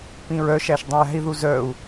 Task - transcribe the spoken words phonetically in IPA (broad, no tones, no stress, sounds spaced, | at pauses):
p ĩ ɹ œ ʃ æ ʃ dˤ ĩ j æ̤ i̯ ð u z œ u̯